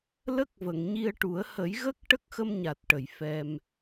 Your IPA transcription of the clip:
lə˦˥k̚və˨˩˨ŋ ɲi˧ə̯ʈu˨˩˦ə̯ hə˨˩˦jɣə˦˥k̚ ʈə˦˥k̚xə˧mɲa˨˩t̚ʈə˨˩˨j fɛ˧m

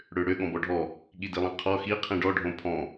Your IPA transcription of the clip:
ɽøɽø ɠɔ̃bɔɖʱɔ | ɠidilˠĩqʰɔ xi qʰĩɖɔ ɖʱõpʰɔ̃

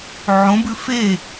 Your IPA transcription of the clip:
ʕõbʉ fe

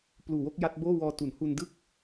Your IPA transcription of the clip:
pluː˨˩wo˥˩k̚ ja˦˥t̚boː˥˩wɔː˧ tu˩˦nhu˧ndɯ˥˩k̚

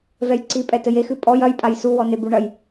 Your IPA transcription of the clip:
vɛjǀi pʼɛtɘjexɨ pʼɔj ɐjpʼaj suwɔne buɳɐj

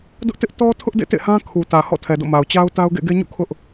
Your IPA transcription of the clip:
dʊ˦ʔtɪ˦ʔ tɔ˦tʰʊ˦ʔ dḛ˦˨tḛ˦˨hã˦ kʰu˨tä˨ hɔ̰˦˨tʰɛ˨do̰˦˨ma˨ʊ̯ t͡ɕa˦ʊ̯ta˦ʊ̯ ɡḛ˦˨ɡe˦ɲṵ˦˨ kʰʊ˦ʔ

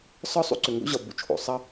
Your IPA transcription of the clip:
sɒ˦ sˤṵ˦ ǀʏ˨ŋɡo̰˦ ʑɒ˨ bṵ˨t͡ʃʰo̰˨ sˤɐ˦

